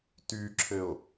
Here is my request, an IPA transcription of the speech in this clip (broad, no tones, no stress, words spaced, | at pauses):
tyǁʰɘo̯